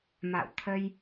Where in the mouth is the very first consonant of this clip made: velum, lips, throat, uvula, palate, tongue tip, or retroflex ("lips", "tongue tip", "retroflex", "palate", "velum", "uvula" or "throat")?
lips